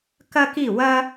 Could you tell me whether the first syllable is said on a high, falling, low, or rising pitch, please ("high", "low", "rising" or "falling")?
high